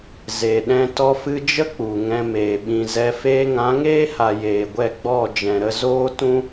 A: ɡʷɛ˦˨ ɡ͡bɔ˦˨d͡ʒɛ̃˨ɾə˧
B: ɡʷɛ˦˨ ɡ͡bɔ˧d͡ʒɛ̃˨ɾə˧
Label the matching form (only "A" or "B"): A